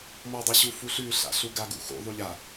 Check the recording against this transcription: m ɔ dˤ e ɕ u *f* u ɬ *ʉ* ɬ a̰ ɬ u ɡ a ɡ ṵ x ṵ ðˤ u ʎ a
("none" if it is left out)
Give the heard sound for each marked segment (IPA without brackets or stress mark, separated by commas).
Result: f, ʉ